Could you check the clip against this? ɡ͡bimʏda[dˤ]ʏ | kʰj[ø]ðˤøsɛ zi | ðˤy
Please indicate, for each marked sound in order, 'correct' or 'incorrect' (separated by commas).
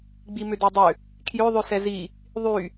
correct, correct